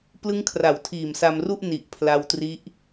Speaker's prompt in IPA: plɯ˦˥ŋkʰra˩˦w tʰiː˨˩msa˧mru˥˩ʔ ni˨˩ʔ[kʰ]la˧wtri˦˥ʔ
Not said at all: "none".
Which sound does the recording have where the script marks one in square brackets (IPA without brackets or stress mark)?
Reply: pʰ